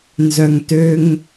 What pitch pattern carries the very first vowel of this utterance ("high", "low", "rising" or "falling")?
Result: low